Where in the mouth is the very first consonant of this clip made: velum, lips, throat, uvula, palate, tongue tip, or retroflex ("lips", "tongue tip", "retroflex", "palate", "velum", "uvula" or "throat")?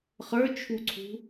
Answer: uvula